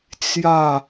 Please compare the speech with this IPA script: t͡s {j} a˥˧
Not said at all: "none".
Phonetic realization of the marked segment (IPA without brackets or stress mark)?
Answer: j